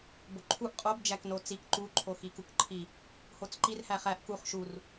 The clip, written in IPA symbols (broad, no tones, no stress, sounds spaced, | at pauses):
b o ǃʰ u ʔ qʼ o b d͡ʒ æ k n o t͡s i k ǃ u ǃʰ o x i k u k ǃʰ i | h o t͡s ǃ i r h æ χ æ ʔ k u χ ʃ u r